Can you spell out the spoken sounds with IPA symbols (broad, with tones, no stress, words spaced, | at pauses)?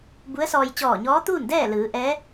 bu˧˥ə̯sɔː˧j t͡ɕɔː˧˩ɲɔː˧˥t̪uː˥˨ndɛː˥˨ lɯː˩˧ ʔɛː˧˥